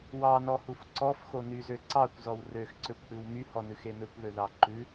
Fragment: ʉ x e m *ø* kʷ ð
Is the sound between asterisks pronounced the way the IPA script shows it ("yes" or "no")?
yes